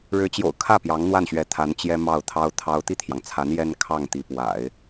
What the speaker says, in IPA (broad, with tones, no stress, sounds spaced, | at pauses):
ɻ ɻ̩˧˥ t͡ɕ j o̰˨˩ ʊ̯ kʰ ä˥˩ p j ɑ˧˥ ŋ n̪ w a˥˩ n ɕ ɥ ɛ˧˥ t̪ʰ a˧˥ n t͡ɕ j ɛ˥ m ɑ˥˩ ʊ̯ t̪ʰ ɑ˥ ʊ̯ t̪ʰ ɑ˥ ʊ̯ t̪ i˥˩ t̪ʰ j ɑ˩ ŋ t͡sʰ a˧˥ n j ɛ˥ n kʰ ɑ˥˩ ŋ t̪ i˧˥ p w a̰˨˩˦ ɪ̯